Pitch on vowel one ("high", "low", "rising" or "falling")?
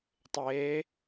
rising